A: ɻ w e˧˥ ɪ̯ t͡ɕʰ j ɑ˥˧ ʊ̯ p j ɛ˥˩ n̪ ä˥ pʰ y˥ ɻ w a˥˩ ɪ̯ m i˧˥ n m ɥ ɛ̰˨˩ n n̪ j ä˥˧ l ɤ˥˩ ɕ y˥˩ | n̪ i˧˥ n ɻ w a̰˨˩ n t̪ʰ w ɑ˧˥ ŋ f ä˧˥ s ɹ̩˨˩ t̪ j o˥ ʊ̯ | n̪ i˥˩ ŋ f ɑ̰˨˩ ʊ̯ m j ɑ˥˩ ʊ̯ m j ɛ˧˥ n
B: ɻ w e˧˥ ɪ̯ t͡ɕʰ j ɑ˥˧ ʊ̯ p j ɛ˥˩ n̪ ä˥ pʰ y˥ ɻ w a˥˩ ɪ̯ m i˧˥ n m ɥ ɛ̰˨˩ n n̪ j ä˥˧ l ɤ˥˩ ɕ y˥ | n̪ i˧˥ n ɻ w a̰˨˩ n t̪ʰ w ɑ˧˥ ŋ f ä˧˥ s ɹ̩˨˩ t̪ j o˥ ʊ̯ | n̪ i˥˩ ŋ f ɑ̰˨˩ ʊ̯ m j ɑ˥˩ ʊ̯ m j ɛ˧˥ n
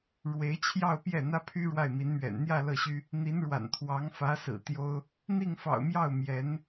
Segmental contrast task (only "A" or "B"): B